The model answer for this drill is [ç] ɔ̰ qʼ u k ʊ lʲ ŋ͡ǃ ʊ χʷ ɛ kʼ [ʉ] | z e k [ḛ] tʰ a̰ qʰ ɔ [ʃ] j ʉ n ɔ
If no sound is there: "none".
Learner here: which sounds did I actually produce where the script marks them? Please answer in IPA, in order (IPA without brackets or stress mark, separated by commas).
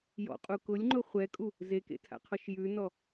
j, u, ḛ, ʃ